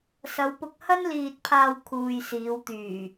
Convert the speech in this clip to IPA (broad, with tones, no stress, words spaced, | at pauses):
sɐ˨˧wpʊ˧k̚hɐ˥n liː˧t̚pʰaː˧w kʰuː˨jsiː˨˧wt̪yː˨˩